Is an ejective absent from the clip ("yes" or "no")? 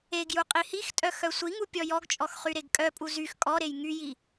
no